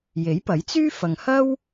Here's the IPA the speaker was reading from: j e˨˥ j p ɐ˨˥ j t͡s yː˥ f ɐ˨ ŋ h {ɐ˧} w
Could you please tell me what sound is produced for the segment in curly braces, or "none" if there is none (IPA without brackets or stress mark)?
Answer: ɐ˥